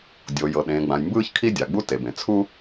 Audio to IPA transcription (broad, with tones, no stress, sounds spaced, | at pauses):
dʲ o˩ j ɤ˩ ɗ ẽː˩ ɡ͡b ã˩ j m b ɯː˥ ç kʰ i˥ dʲ a˩ ɡ͡b u˥ t e˩ b ẽ˩ t͡sʰ u˥